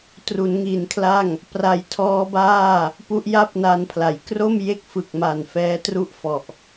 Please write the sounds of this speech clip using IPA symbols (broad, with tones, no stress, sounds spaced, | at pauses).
t r u˩˦ n ŋ i˩˦ n kʰ l a˥˩ ŋ | p r a˨˩ j tʰ ɔː˦˥ b aː˥˩ | p u˦˥ ʔ j a˥˩ p̚ n a˧ n pʰ l a˩˦ j k r o˥˩ m j e˥˩ k̚ f ɯ˨˩ k̚ m a˨˩ n f ɛː˦˥ t r u˥˩ ʔ f ɔ˨˩ ʔ